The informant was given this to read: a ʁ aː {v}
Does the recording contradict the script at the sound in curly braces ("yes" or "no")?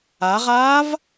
no